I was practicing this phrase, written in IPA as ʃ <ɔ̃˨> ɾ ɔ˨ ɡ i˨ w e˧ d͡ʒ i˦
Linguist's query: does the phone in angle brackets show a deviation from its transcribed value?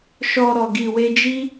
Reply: yes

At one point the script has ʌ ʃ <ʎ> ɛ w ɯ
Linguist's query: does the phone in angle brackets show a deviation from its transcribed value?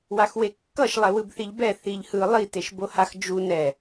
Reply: yes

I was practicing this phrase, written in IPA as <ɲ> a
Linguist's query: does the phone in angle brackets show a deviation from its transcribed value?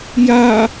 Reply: yes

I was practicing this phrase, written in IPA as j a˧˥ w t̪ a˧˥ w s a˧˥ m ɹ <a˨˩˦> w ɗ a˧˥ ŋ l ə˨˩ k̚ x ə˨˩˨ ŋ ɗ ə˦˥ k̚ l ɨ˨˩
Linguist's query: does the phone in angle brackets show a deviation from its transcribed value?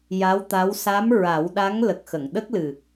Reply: no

